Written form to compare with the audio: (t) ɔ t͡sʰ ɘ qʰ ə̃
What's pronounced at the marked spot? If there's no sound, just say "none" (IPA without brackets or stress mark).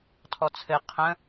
tʰ